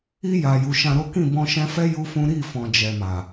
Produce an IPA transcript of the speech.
i˧ j a˨ j u˨ ʃ ã˧ ɾ o˦ k ĩ˦˨ b ɔ̃˧ ʃ ɛ̃˧ f ɛ˦ j u˦ f ũ˦ ɾ i˦˨ f ɔ̃˨ d͡ʒ ɛ˨ m a˨

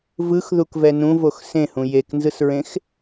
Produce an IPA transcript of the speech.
v ɯ x ð u k v ɛ n ũ v o x s ẽ h ũ j e k n z ɯ s ɹ ẽ x

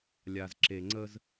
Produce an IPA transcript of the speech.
lʲ a˨ z ǁ e˨ ŋ͡ǀ ə˦ z

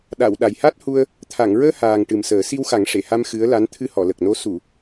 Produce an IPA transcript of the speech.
ɗ a˨˩˨ w ɗ a˨˩ j h a˦˥ t̚ h u˧ ə̯ | t̪ʰ a˨˩˨ ŋ ɹ əː˧ h aː˨˩ ŋ ʈ ɨ˨˩ m s əː˨˩˦ s i˧ w x a˨˩˦ ŋ ʂ e˨˩˨ h a˧ m x ɨ˧˥ ə̯ l a˧˥ n t̪ʰ ɨ˧ h ɔ˨˩˨ l ə˨˩ k̚ n o˧˥ s u˨˩˨

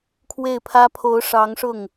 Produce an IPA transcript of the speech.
kʰ w e˥˩ ɪ̯ pʰ ä˥ pʰ o˧˥ ʊ̯ ʂ ɑ˧˥ ŋ ʂ ʊ˥˩ ŋ

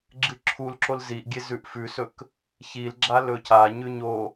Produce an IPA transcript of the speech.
ɡ͡ǁ ɨ ǁʰ u l ǁ o l z i ʔ ɡʲ e z ʉ ʔ f ʉ s ɵ k | ç i l ɡ͡ǁ a l ɵ cʰ a ɲ ʉ ɲ o

